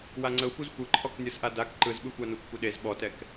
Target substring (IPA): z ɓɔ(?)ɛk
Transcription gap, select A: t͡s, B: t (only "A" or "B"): B